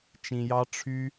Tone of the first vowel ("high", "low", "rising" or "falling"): low